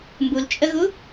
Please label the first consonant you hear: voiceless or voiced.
voiced